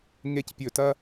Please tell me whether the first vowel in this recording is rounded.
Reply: no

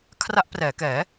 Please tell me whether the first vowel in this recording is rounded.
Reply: no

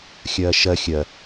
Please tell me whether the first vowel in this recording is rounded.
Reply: no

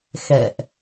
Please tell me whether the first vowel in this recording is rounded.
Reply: no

